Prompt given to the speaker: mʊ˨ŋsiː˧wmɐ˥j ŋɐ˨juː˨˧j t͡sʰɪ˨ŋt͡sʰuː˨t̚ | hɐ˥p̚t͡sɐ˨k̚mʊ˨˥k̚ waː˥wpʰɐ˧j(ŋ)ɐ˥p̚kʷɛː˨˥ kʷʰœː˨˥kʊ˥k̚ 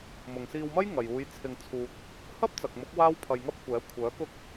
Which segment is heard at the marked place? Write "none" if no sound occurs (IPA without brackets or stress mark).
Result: ŋ